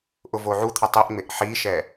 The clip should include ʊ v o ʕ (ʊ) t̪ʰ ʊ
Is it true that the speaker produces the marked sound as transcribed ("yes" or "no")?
no